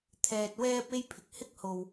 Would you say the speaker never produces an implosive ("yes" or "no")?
yes